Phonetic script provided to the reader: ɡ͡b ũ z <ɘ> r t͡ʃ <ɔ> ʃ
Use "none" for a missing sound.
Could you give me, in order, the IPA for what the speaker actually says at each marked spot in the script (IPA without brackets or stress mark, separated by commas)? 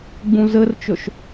ɘ, ɵ